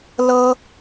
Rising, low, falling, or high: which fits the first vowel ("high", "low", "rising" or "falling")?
high